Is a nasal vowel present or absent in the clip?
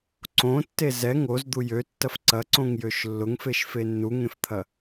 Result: present